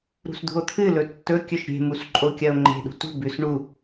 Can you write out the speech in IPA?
ɾṳsd̪ṳo̯t̪ʰɨ lɵtːɵ kʲɵʃɾʲe̤ musǃʼokʲɐo̯ŋ͡ǃe̤ ɗṳtṳ bʉs ɳu

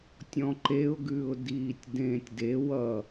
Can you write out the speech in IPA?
tʲɔ̃ǃeʊ̯ɡʉːʊ̯ diːtʲdẽːtʲde wʌ

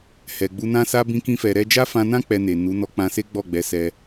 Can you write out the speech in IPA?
hɛ˨ɡ͡bu˧nã˦sa˦ bĩ˦kĩ˦fɛ˧ ɾɛ˧ d͡ʒa˦fã˧nã˦ k͡pɛ˧ne˨ nu˨˦ nɔ˧k͡pã˧se˦ ɡ͡bɔ˦˨ɡ͡bɛ˨˦sɛ˧

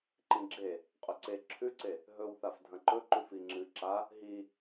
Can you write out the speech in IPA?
ǃĩɡ͡ǁe | qʼɵǀe ǁʰʉǀe | ɦɵwθaf dʱɐ̃ǃɵ ǃʉfiŋ͡ǁɨ ǁa | ɦi

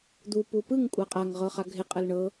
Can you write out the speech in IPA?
d̪u pupɯŋ kʷʼaqʼaŋ ʁɤχaɡʱɪ qʼəlɳɤ

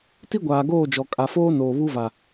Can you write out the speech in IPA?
ti˦ɡʷaː˨ɡoː˦˨d͡ʒɔ˨ kʼa˨foː˦ noː˨βu˦va˨

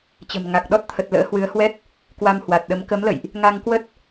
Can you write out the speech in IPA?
t͡ɕə̤˨˩mŋa˨˩k̚ ɗɔ˦˥t̚t̪ʰə˨˩t̚lə̰ː˧˥ hwɨ˨˦ə̯hwɛ˦˥t̚ | kwa˧m hwa˨˩t̚ɗə˨˦m kə˨˦mlə̰˧˨jʔ | ŋa˧ŋkwə˦˥t̚

